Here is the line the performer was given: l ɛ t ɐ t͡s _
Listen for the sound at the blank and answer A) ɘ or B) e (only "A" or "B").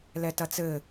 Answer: A